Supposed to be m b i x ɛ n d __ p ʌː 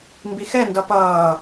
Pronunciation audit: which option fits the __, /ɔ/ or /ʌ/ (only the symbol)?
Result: ʌ